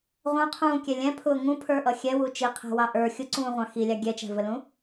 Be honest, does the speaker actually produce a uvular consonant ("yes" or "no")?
yes